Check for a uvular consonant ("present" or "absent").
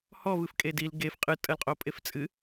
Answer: present